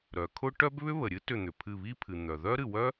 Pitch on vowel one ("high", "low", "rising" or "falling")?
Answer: low